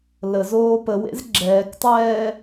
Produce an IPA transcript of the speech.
l ə z oː p ə w ḛ z ɡ͡ǁ ɛː k tˤ ɛː

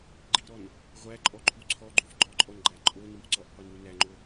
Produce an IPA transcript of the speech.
ɡ͡ǃ i ɾ ɔ n | ʁʷ æ ǃʼ ɔ ǃʰ u ǀʰ ɔ ɡ͡ǃ u f ɡ͡ǃ ɔ ǃʼ ɔ n ɡ͡ǃ æ ǃʼ o n u ʔ ǀ ɔ ʔ qʷ i n ɾ u n æ ŋ͡ǃ o

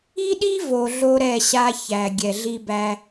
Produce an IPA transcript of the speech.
i˦ ɗ i˦ v o˨ ɮ o˦ ɾ ɛ˦˨ ɕ a˦ ç æ˨ ɡʲ ɛ˨ ɮ i˦ b æ˦

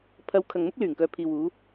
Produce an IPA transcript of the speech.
pʰ ɐ˨˧ w kʰ ɐ˨ ŋ m ʊ˥ k̚ l yː˨˩ ŋ k œː˨ pʰ iː˨ w uː˨˧

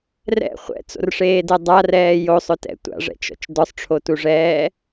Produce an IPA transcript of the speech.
r ɛ̰ χʷ ɛ̰ t͡s o̰ r ʂ eː d ɛ dˤ a r ɛː j o sˤ ʊ t ɛ̰ tʷ a̰ ʐ ɛ̰ t͡ʃ ɔ̰ t͡ʃ d ɔ sˤ ʈ͡ʂʰ o t u ʐ ɛː

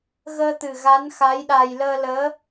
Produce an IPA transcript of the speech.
ɣ əː˧ t̪ ɨ˨˩ ɣ a˧˥ n x a˧˥ j ɗ a˧ j l əː˧ l əː˧˥

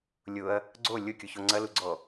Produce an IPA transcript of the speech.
lʲ ʊ ɐ̯ | ɡ͡ǀ o lʲ ʊ kʲ u ç o ŋ͡ǀ ɐ l u ɡ͡ǀ ɔ

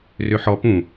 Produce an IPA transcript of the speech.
r ø ħ ɔ p ũ

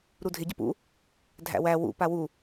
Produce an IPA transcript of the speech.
ɾ u dʱ ɪ ɟ ə p ṵ | dʱ æ̰ w æ w ṵ p a w u

